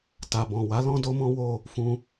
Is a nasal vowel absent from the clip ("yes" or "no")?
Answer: no